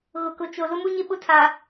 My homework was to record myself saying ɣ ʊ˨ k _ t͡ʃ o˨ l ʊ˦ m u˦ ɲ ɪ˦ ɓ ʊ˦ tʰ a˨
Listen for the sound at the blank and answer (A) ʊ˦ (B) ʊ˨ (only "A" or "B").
B